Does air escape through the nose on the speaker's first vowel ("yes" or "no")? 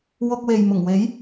no